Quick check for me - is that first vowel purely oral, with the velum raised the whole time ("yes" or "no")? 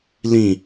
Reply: no